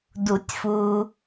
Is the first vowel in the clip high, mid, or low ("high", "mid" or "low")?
high